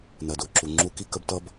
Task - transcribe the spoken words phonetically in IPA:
nɜ˨dʊː˨ǁu˨ ŋ͡ǁu˧ki˦˨k ə˦btʌ˦b

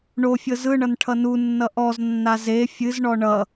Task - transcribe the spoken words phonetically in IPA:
ɳofʲɤ zɯɳʌn ʈʰʌnunːʌ ʔɔznːa ze fʲɨzɳɔ ɳʌ

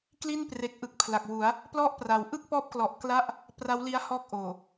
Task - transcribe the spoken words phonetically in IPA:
kli˥˩npre˨˩k̚ʔɯ˨˩k̚ pʰla˨˩k̚wu˩˦a̯ | plɔ˥˩ʔpra˨˩w ʔɯ˥˩k̚pɔː˦˥p̚klɔ˨˩ʔ kla˥˩ʔ | pra˦˥wli˦˥a̯hɔː˦˥k̚ʔoː˨˩

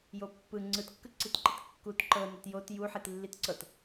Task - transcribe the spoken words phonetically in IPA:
jopːɯ ŋ͡ǀɯtkːɯǀitǃit kːut ǃɤnɛt jot ju ħitlːitǀɤt

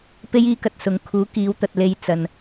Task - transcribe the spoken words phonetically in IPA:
pe˥jiː˥kɐ˨t̚ sʊ˨ŋ kʰuː˨˥kiː˨˧wt̪ɐ˨t̚ le˨˧j t͡sɐ˨n

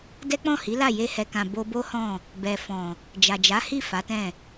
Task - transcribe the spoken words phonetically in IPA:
dɛ˦k͡pɔ̃˦˨ hi˨˦la˦˨ je˧hɛ˨kã˨ bo˧bo˦hɔ̃˦˨ | bɛ˨fɔ̃˨ | d͡ʒa˨d͡ʒa˨˦hi˦˨ fa˨˦tɛ̃˦˨

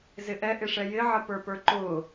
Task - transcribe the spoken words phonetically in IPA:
zɪʔɛ ʔɪʂɛjɪ ʕəpə˞pə˞ǃʊː

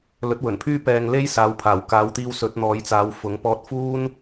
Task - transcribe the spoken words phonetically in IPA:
lɵ˨˥t̚wɵ˨˩npʰyː˥ pɛː˧ŋle˥j saː˨˧wpʰaː˨˩wkaː˨˧wt̪iː˧w sɵ˨˥t̚n̪ɔː˨˥jt͡saː˨˧w fʊ˨˥ŋ pɔː˧t̚fuː˥n

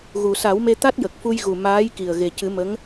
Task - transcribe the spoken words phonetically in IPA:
ɣu˨˩sa˨˩˦wme˧ t̪a˦˥t̚jə˨˩k̚fu˧jɣu˨˩ maː˧˥jki˨˩ə̯ ɣe˨˩cɨ˨˩˦ mə˧˥ŋ

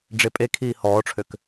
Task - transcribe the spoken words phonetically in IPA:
ɖ͡ʐepʼekʰiː hɔːʈ͡ʂʰøk

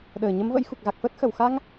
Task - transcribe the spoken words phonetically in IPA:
ɗəː˧˩ɲə˨˦mvə̰˧˥jxu˨˩k̚ ɣa˨˩k̚fəː˦˥t̚xə˧˩w xa˧ŋ

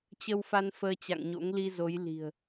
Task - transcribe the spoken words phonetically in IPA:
t͡ɕə˧w fa˧n fəː˧t͡ɕa̰˧˨ŋ ɲo̰˧˥ŋ li˧zo˨˦j li̤˨˩ə̯

